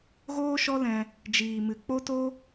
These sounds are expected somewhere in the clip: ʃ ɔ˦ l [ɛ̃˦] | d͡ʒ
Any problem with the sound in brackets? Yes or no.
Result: yes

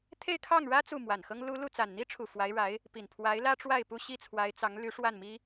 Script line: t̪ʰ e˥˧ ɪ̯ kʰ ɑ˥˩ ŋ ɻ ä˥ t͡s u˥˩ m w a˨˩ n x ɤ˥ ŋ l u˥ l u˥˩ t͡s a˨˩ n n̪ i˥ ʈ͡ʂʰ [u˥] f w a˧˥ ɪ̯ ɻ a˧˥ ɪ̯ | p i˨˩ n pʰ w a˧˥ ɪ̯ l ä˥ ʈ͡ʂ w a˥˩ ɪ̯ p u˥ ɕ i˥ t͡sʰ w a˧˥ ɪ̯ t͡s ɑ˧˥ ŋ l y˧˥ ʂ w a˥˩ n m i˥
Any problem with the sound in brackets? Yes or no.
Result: yes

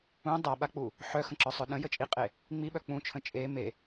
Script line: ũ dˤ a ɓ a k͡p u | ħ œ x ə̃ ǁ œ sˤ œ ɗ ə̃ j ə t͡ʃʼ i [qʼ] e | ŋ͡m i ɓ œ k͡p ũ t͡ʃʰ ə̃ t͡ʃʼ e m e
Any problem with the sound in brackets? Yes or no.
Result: no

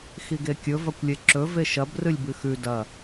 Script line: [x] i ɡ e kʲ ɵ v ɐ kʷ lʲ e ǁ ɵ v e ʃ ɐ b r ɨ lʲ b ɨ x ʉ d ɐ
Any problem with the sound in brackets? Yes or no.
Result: no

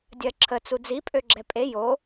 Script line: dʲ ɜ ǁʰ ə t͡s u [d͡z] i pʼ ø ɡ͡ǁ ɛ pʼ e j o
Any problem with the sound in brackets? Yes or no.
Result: no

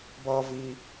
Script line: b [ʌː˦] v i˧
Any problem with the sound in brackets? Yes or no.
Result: no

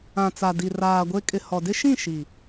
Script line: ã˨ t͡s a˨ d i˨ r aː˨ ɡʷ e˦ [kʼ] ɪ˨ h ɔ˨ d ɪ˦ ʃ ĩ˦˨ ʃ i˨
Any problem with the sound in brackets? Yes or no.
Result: no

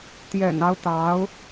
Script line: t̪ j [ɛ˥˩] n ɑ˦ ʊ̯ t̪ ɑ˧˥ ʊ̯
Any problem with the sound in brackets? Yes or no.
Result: yes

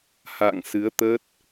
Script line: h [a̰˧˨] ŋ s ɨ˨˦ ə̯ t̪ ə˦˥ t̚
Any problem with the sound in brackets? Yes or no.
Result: no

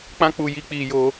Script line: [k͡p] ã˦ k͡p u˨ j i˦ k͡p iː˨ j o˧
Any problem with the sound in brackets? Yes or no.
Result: no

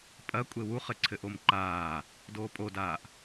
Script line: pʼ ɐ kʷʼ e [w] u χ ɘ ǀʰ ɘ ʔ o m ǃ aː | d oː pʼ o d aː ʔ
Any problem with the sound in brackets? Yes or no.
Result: no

